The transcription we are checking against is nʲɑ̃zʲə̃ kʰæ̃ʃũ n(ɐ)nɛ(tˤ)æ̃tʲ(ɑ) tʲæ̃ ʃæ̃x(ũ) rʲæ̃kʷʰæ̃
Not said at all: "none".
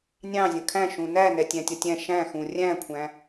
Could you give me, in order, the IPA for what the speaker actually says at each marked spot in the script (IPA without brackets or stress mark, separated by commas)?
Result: æ, tʲ, ʌ, ũ